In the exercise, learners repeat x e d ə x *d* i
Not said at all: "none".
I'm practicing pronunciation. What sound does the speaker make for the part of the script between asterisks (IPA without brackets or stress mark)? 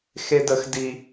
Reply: d